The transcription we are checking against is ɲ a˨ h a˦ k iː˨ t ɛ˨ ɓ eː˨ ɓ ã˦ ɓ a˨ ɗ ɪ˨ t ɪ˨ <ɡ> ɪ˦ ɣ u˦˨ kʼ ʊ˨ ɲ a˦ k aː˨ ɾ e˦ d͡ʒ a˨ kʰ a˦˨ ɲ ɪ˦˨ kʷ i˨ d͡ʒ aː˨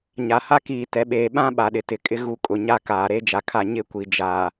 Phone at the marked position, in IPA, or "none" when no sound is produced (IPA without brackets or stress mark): kʼ